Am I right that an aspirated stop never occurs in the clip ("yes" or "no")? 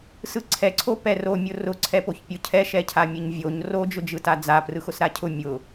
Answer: no